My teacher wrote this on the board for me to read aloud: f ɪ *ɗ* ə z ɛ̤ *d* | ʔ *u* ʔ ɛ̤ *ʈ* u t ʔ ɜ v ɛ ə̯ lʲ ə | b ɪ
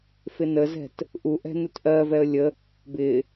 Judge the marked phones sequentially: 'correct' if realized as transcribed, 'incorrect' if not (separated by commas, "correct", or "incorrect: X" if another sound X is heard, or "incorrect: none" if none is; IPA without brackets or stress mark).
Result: incorrect: n, incorrect: t, correct, incorrect: n